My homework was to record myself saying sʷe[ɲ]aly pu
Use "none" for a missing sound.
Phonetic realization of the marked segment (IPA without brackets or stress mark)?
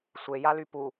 j